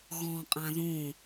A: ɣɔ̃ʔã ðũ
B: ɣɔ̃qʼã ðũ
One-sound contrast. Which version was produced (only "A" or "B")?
B